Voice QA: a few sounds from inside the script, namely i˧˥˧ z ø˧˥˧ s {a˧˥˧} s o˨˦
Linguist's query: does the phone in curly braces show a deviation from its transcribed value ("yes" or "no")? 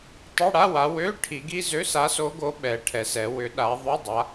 yes